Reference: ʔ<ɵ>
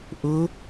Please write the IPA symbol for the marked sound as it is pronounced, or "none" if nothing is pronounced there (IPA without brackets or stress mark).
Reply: ʊ